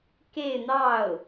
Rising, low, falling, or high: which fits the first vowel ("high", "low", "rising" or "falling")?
falling